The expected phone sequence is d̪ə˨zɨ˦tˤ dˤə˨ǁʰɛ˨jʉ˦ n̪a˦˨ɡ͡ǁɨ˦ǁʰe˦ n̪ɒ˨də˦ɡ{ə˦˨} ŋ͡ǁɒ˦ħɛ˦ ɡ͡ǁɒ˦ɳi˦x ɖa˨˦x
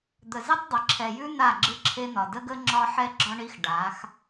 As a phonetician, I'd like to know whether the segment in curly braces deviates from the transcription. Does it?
yes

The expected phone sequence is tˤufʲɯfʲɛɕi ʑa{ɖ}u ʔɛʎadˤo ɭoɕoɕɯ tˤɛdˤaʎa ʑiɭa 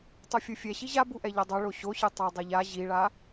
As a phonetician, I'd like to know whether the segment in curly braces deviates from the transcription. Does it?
yes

